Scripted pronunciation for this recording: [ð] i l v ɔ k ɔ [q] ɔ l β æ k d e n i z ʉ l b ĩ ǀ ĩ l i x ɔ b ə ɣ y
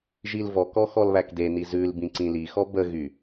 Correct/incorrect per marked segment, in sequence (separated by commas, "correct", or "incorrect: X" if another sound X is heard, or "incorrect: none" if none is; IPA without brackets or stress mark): incorrect: ʒ, incorrect: x